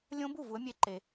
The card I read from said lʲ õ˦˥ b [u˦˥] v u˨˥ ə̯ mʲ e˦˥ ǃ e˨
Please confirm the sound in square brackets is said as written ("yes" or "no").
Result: no